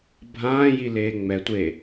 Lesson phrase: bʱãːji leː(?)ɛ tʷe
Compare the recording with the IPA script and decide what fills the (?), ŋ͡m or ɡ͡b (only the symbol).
ŋ͡m